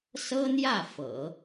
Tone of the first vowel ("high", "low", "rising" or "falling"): high